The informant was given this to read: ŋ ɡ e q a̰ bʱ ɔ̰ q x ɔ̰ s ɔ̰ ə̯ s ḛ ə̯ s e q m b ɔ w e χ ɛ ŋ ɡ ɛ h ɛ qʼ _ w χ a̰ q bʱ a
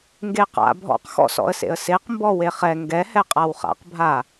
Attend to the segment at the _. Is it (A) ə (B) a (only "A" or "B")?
B